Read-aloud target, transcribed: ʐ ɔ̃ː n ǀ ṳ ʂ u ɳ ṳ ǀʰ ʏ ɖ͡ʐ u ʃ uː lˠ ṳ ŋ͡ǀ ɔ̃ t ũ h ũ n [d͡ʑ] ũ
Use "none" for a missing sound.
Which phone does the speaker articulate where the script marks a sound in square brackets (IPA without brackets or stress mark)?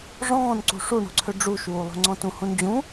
d͡ʑ